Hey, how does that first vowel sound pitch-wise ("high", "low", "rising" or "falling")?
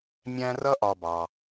high